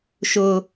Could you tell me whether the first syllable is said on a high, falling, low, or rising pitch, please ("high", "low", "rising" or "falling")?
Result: high